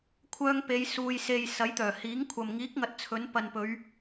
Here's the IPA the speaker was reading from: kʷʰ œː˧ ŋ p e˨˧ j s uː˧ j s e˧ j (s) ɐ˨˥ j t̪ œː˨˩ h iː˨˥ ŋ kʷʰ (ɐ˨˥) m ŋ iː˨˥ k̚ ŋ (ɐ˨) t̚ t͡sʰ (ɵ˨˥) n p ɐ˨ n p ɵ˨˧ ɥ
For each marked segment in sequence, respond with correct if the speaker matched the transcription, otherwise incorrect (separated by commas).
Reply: correct, incorrect, correct, correct